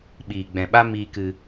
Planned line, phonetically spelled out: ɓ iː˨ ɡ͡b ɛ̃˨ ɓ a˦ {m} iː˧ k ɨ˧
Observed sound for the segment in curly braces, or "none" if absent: m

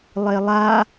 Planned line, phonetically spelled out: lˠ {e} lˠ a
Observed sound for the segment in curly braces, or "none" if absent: e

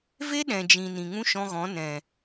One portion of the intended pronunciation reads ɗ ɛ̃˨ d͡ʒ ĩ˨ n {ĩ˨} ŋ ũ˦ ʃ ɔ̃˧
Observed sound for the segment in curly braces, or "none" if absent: ĩ˨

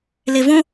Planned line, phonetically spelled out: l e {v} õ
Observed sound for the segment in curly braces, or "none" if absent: v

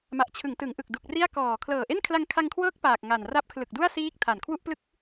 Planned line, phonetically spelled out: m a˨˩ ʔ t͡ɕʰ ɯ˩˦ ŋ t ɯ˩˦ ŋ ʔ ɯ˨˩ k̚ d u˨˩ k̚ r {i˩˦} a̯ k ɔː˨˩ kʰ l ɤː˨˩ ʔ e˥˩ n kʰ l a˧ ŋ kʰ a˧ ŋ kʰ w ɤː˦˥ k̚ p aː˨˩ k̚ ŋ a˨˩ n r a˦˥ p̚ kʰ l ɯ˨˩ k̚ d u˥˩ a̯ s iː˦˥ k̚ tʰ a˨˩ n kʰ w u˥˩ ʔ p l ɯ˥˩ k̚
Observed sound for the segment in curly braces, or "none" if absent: i˥˩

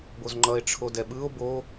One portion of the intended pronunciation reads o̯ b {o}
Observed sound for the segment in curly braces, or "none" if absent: o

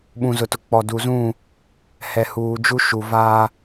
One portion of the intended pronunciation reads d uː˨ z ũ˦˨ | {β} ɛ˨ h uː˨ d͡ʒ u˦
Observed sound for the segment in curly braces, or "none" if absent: h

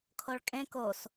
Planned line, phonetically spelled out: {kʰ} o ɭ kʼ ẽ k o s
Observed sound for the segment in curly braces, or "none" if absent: kʰ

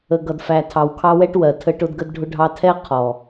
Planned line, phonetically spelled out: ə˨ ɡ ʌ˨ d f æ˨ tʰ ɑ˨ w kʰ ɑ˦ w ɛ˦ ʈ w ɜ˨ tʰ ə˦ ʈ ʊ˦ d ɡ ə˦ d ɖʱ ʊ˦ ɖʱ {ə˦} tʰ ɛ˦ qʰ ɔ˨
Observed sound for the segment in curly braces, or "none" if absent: ɑ˦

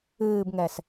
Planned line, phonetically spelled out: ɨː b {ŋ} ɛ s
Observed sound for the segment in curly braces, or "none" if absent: ŋ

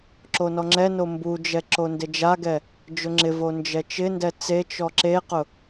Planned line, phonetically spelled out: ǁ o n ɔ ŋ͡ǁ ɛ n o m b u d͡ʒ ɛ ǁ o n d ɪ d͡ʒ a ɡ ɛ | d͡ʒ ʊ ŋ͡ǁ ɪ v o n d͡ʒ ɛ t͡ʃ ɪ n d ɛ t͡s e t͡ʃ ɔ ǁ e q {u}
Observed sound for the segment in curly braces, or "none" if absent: ʊ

